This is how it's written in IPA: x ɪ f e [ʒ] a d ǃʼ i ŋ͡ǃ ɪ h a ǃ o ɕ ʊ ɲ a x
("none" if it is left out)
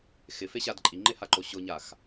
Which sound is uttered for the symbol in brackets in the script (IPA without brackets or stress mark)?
ɕ